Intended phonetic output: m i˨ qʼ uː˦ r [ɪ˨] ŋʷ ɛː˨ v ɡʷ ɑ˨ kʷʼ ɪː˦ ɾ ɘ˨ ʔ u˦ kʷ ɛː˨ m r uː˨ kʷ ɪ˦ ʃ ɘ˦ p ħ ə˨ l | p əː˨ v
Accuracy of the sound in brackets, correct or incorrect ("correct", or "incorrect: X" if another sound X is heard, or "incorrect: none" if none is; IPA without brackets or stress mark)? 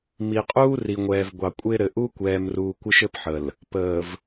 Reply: incorrect: i˨